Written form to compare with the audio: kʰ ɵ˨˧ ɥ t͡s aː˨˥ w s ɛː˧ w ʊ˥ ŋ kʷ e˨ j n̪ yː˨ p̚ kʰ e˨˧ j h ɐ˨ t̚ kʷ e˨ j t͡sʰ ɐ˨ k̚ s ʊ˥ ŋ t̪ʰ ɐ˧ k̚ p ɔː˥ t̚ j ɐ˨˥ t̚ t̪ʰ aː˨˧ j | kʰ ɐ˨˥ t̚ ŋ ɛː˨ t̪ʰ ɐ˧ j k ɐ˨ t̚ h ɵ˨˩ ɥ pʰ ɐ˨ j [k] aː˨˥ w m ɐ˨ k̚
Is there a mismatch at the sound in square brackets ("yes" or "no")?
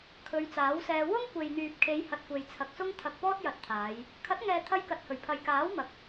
no